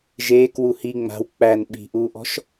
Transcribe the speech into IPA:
ʒ eː k w u h i ŋ͡m a̤ w k͡p æ n ɓ i̤ ʔ uː ʔ ɔ̤ ʃ

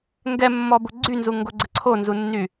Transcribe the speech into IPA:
ŋ ɡ ɛ mː ɔ b o ɡ͡ǀ y n z u ŋ ɡ o ɡ͡ǀ ə ǀʰ o n z u nː y

